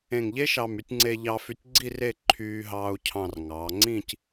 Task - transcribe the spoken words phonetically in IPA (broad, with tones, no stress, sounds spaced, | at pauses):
ẽ˧˩ ŋ ʎ e˥ ʃ ɑ˧˩ m y˧ tʲ ŋ͡ǀ e˧ ʎ ɑ˧ f y˧ tʲ ɡ͡ǀ i˥˧ r e˥˧ ǃʰ yː˧ ɦ ɑː˧ u̯ cʰ ɑ̃˧˩ r ŋ ɑ˩˧ ŋ͡ǀ ĩ˥˧ c